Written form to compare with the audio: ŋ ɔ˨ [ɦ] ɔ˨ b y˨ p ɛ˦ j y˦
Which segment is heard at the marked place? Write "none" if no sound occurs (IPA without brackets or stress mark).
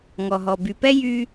ɦ